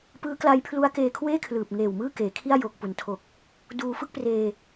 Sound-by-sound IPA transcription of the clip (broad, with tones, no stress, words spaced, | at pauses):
pɯː˦˥ kla˦˥j pʰlu˦˥a̯keː˧kʰweː˥˩kʰlɯː˨˩p̚ ŋeː˨˩w mɯː˥˩keː˩˦kʰi˥˩a̯ joː˨˩k̚pu˩˦ntʰo˨˩k̚ | duː˧fɯ˥˩k̚preː˧